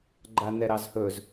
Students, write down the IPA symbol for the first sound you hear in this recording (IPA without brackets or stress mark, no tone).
ɡ͡ǃ